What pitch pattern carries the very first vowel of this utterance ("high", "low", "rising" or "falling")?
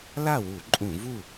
falling